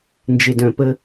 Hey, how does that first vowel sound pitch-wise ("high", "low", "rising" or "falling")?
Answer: low